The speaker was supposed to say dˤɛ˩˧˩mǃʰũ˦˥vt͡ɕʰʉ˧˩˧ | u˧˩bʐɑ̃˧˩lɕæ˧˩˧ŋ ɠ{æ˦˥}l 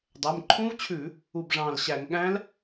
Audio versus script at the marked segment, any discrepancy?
yes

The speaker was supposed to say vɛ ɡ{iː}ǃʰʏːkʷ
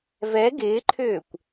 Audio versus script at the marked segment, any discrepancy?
yes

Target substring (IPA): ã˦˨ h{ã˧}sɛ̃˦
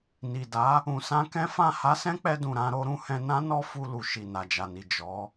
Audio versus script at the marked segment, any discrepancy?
yes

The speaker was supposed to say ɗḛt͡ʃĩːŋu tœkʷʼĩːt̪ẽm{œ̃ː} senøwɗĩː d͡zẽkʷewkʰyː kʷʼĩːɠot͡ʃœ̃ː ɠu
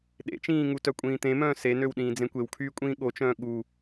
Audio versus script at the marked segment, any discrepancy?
no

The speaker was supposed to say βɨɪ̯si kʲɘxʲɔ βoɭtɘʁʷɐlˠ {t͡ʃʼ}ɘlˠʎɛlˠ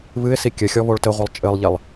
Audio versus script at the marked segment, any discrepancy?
no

